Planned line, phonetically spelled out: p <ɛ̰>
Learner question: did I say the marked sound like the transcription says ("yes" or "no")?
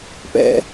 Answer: yes